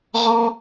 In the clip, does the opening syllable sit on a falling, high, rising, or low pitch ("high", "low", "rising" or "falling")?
high